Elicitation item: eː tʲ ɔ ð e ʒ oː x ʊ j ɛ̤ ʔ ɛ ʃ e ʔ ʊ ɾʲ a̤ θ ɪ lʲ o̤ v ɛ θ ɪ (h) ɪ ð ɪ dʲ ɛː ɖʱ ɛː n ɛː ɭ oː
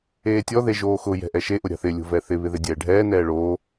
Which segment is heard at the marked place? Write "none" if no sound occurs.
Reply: β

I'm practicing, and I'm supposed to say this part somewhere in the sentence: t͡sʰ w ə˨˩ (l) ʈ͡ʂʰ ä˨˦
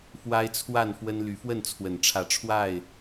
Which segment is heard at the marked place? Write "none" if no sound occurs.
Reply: n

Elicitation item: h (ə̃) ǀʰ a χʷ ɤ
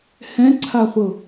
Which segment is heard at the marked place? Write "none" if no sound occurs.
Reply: ɛ̃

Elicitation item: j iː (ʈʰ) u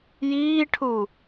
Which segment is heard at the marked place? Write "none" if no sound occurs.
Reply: ʈʰ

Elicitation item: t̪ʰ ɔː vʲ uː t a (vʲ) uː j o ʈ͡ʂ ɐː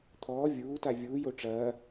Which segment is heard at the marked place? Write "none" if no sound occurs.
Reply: vʲ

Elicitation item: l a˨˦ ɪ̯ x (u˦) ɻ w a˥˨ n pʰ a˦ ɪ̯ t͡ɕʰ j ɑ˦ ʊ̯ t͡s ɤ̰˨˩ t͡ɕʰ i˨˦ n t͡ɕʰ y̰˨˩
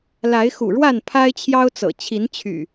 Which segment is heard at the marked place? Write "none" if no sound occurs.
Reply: ṵ˨˩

